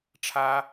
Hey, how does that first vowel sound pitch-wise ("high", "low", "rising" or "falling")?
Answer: high